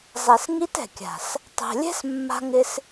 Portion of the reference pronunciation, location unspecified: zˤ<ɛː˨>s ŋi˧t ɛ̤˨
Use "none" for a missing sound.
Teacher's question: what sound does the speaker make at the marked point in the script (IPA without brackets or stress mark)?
ɛ˨